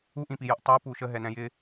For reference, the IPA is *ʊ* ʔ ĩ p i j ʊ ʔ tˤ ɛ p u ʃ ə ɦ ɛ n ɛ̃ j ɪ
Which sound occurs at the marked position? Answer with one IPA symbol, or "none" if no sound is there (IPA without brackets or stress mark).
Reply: u